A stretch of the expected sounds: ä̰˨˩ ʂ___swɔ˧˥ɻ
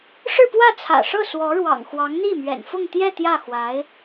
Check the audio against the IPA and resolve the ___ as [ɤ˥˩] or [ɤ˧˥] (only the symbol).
ɤ˥˩